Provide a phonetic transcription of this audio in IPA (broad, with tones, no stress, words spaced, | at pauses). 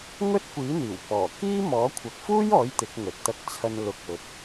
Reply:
ŋɵ˥t̚kʷiː˨˥n̪iː˨˩wpɔː˨˩ kiː˥ mɔː˨˥kʷʰɐ˨˥k̚fuː˥jɔː˨˥j t̪ɪ˨˥k̚ŋɵ˨t̚ t̪ɐ˧k̚t͡sʰɐ˧n lʊ˧k̚ɵ˧t̚